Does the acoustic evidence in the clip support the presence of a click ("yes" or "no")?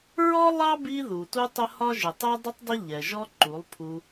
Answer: yes